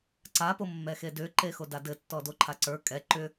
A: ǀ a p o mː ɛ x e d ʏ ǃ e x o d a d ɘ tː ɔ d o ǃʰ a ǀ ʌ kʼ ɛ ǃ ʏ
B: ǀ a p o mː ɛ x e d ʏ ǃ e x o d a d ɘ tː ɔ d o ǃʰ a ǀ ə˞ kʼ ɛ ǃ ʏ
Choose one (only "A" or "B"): B